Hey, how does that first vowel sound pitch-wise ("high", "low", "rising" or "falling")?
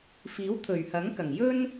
rising